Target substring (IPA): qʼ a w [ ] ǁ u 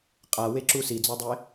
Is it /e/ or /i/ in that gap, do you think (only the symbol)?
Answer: e